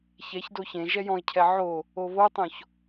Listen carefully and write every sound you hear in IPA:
ç ɛ ç d o ç ẽ ʒ ɛ j ɔ̃ ɪ̯ cʰ ɛ ʕ o | o β o tˤ õ ç

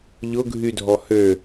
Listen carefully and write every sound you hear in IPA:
ʎ ʊ ɡʱ y dʱ ɔ h ø

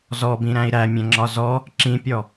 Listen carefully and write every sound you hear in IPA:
z ɔ b ĩ ɾ æ̃ i̯ ɾ æ mʲ ɛ̃ ŋ͡ǁ ɒ z ɔ | ǁ ĩ pʲ ɔ

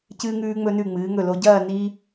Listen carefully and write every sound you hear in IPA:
c ɨː˧ ŋ ʉː˧ ŋ͡m ɵ˧ n ʉ˧˩ ŋ͡m ɨː˩˧ ŋ ɵ˧˩ l o˧ ɟ ɐː˥˧ n i˥

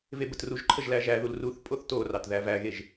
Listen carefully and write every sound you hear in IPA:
v e b ə t r u ʒ ǃʰ ə ʒ l æ ʒ æ ð u l r u θ pʼ o θ t o r ɑ t ð æ v æ ɣ e ʒ

